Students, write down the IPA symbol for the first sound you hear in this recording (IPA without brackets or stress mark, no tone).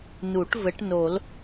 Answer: n